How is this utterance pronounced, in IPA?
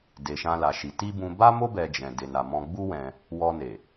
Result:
de˨ʃã˧ la˨ʃi˨ ti˧ bũ˧ ba˦mo˦ bɛ˧d͡ʒɛ̃˨ de˨na˨ mɔ̃˧ɡ͡bu˦wɛ̃˧ | wɔ˧ ne˨

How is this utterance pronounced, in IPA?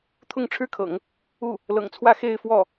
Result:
t̪ʰʊ˥˩ŋʈ͡ʂʰɻ̩˥kʰɤ̰˨˩˦ŋ | u˥˩ | lɤ̰˨˩ŋt͡sʰwä˥˧ xe˥˧ɪ̯fwɔ˥˩

